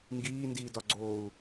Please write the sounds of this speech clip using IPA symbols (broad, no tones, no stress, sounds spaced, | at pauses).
ŋ ɡ iː n d iː d ɒ ɡ͡ǀ oː u̯